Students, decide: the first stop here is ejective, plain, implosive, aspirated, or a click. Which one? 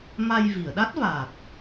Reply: implosive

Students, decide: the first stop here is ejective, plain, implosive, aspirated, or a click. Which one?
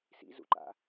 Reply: click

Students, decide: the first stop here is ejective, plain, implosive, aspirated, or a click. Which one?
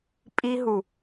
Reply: ejective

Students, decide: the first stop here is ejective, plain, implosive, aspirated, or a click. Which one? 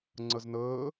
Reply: click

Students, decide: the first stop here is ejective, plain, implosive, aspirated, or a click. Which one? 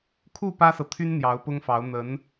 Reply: aspirated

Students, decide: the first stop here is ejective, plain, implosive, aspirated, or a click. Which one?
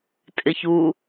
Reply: ejective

